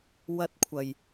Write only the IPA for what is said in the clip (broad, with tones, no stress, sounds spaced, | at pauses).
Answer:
w ɐ˧ t̚ kʷʰ ɐ˨˩ j